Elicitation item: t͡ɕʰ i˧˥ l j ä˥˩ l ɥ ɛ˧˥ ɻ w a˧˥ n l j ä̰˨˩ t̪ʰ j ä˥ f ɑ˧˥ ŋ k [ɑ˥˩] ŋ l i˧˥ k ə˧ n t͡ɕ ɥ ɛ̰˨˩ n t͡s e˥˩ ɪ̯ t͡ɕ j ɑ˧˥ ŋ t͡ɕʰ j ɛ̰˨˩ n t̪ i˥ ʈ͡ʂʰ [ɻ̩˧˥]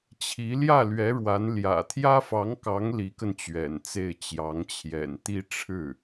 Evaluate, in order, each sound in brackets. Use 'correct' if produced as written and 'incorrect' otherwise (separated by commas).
incorrect, incorrect